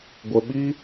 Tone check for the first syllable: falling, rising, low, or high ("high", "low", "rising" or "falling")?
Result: low